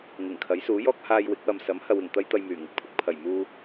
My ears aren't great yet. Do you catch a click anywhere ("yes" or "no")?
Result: no